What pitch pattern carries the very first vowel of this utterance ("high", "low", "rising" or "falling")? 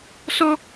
high